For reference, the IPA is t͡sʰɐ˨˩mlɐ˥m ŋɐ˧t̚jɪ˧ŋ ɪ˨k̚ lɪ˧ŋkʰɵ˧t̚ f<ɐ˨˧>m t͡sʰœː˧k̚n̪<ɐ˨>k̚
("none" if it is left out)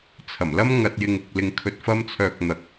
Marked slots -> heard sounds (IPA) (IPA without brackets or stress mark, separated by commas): ɐ˥, ɐ˨